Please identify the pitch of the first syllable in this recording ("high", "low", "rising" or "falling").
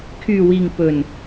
low